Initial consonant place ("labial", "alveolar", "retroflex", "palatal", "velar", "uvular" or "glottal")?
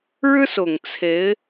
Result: retroflex